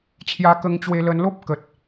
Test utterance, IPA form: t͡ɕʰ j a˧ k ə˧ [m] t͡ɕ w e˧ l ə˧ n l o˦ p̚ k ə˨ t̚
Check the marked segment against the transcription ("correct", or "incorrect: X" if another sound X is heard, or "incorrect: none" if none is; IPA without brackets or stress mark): incorrect: ŋ